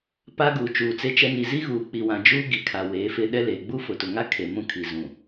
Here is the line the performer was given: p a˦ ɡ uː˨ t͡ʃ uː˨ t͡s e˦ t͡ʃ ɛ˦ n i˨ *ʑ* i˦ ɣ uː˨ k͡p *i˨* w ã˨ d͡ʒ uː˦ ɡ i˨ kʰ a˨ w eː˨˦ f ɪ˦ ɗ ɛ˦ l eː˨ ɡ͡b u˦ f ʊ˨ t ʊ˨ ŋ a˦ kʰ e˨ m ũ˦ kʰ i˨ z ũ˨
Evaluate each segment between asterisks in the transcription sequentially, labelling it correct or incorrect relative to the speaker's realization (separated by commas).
incorrect, correct